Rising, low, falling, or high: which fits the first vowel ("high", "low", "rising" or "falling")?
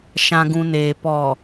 low